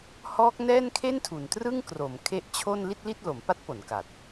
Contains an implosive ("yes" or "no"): no